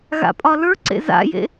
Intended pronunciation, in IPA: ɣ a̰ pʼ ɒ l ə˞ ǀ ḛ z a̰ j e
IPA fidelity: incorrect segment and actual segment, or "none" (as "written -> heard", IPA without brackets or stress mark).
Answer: e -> ḛ